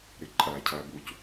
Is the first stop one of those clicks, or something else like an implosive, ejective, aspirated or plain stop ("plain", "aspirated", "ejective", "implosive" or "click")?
click